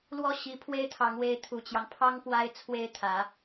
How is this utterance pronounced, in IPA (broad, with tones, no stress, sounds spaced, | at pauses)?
l w ɔ˥˩ ɕ i˧˥ pʰ w e˥ ɪ̯ t̪ʰ ɑ˧˥ ŋ w e˧˥ ɪ̯ t̪ʰ u˨˩ t͡ɕ j ɑ˦ ŋ pʰ ɑ˥ ŋ p w a˥ ɪ̯ t͡sʰ w e˥ ɪ̯ t̪ʰ ä˧˥